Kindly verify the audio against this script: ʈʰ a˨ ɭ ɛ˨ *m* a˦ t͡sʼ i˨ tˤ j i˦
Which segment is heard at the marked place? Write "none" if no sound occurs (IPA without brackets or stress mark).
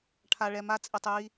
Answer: m